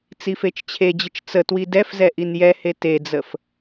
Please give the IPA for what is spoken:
t͡sifet͡ʃt͡ɕʰed͡ʑət͡ʃ t͡sə twidɛfzɛ ʔinjɛhe ted͡zəf

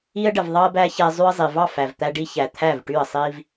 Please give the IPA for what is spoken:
i˧ə̯ɖə˨v ðˤɑ˦ə̯bæ˦ çɛ˧ zˤy˧ə̯zˤi˨ vɑ˦˨fæ˨vt̪æ˧ ɖi˧çæ˨ t̪ʰæ˦˨vʈy˦˨ə̯sˤi˦v

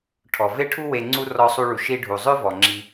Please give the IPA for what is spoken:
ʈʰɔ˩ ve˥ʈʰu˥ we˧ŋ͡ǀu˥ rɔ˧sˤu˧ɭu˩ ʃi˧ɖʱu˩zˤø˥ vɔ˩ŋ͡ǁi˧

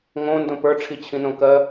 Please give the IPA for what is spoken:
ŋõ ndõpə˞ʈ͡ʂʰi t͡ɕʰĩnõkɜ

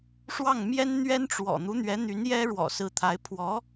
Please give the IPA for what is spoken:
ʂwɑ˥˩ŋmjɛ˥n n̪ɥɛ˥nʈ͡ʂwɔ̰˨˩ n̪u˧˥n̪ɥɛ˧˥n̪y˧˥n jɛ˥ɻwɔ̰˨˩sɹ̩˧˥t̪ʰa˧˥ɪ̯ pʰwɔ˧˥

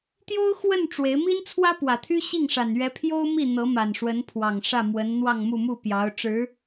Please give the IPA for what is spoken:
t̪jo˥ʊ̯ xwə˥˩n ʈ͡ʂwe˧˥ɪ̯ mi˥nt͡sʰwä˥pwä˨˩t̪ʰy˥ ɕi˥˩ŋʂa˨˩n ɥɛ˧˥pʰjo˥ʊ̯mi˥˩ n̪ɤ˧˥ma˨˩nʂwə˧˥npʰwɑ˨˩ŋ ʂä˥˩mwə˧˥n n̪wɑ˥˧ŋmu˥˧mu˥˩ pjɑ˧˥ʊ̯ʈ͡ʂɻ̩˧˥

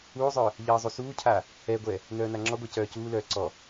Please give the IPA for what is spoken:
uːzˤœː | ʎɜːzˤusuːcʰaː | ɛɡʷɛː | nœːnaŋ͡ǁɔɡʷɛ cœːcuːlœː ǀɔ

